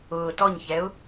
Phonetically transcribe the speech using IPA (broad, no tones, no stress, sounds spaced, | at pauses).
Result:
ʊː t ɔ ɲ ç ɛ ʊ̯